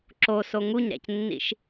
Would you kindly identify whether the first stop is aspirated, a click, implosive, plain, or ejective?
click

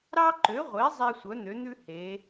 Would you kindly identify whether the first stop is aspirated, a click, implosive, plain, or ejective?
click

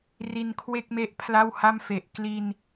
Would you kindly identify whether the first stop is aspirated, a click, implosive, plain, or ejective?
aspirated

